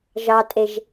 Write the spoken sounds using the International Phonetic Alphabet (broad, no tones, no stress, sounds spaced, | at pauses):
ʒ ɑ tʼ e ʒ